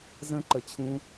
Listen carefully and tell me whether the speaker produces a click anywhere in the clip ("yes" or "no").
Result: yes